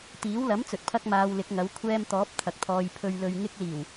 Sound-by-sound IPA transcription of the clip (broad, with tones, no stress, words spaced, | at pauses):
t̪iː˨˥w lɐ˨˥mt͡sɵ˨t̚pʰɐ˧k̚ maː˧wlɪ˨˥k̚ŋɐ˨˥w kʷʰɛː˧mt̪ɔː˨˥p̚ t̪ʰɐ˨k̚t̪ʰɔː˨j pʰɵ˨ɥlɵ˨ɥ ŋɪ˧k̚liː˨˩w